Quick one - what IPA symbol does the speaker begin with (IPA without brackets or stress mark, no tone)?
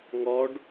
ŋ